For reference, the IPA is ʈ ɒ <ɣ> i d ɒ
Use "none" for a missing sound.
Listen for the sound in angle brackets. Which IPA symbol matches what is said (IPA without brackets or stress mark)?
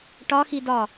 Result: x